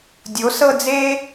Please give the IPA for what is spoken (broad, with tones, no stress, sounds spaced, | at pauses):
dʲ o˩˥ s ɤ˥˧ d͡z e˥